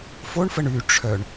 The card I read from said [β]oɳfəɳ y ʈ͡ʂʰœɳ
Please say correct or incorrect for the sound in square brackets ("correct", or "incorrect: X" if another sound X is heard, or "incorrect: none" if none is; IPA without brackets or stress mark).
incorrect: f